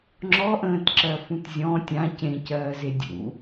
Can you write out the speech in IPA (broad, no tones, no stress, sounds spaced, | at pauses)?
ŋ͡ǁ ɔ ʔ ə̃ː t ǁ ɜ f ũ t zʲ ɔ̃ tʲ ã c ẽ c ɜː z e dʲ ṵ